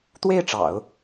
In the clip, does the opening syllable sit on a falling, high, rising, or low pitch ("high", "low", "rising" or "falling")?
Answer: falling